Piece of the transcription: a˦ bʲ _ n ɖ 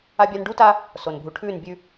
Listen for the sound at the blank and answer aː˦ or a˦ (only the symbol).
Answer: a˦